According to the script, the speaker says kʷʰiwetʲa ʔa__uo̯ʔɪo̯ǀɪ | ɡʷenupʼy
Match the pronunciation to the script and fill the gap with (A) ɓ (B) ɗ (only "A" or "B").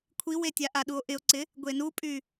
B